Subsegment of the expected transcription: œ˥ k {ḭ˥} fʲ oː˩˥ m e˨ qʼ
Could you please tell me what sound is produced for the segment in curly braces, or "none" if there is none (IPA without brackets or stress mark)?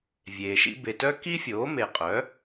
i˥